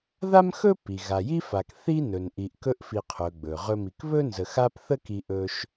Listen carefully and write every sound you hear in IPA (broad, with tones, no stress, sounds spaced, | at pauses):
ð a˥ m x ɵ˥ p i˩ ɣ a˨ j i˥ f a˨ k θ i˥ n ɵ˩ n ʔ i˨ ʔ k ɵ˦ ʔ f i˨ qʰ ɵ˩ ɡ͡b ɵ˩ ʁ ɵ˦ m i˨ k β ɵ˥ n z ə˨ x a˦ p θ ə˥ k i˦ ʔ ɵ˥ ʃ